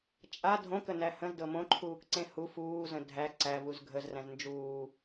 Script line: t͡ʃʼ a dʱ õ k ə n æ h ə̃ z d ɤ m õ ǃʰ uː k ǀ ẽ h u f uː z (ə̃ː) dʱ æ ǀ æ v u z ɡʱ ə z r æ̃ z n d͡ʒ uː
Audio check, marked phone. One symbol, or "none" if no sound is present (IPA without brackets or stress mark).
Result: ə̃